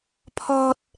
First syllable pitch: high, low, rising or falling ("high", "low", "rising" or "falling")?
low